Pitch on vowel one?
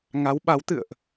rising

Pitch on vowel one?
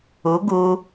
rising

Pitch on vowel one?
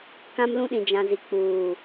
high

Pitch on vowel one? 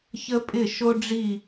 high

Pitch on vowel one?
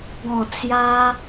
low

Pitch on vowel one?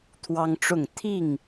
high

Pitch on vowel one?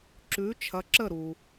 rising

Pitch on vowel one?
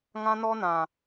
high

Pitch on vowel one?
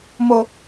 low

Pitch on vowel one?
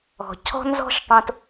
low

